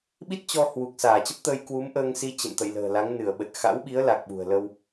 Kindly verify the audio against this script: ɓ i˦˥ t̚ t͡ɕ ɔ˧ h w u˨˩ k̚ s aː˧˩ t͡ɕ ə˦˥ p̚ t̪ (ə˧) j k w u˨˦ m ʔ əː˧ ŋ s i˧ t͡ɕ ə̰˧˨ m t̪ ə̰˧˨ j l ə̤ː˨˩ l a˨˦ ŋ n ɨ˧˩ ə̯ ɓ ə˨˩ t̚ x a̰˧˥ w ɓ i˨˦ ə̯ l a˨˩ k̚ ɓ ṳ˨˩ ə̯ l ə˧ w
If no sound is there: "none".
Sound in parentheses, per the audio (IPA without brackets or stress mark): əː˧